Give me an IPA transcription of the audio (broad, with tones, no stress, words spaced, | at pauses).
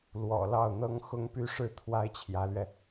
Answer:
lwɔ̰˨˩lɑ˥˩ʊ̯n̪ɤ˥ŋ xʊ˥ŋpy˥˧ʂɻ̩˥˩ t̪ʰwa˥ɪ̯t͡ɕʰjä˧˥lɥɛ˧